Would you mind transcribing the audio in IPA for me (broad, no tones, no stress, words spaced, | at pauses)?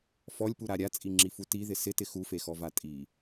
fɔlʲpuɾa ɾʲat͡sʼiŋ͡ǁifu tiðɪ sɪtɪ xufexɔva tʼi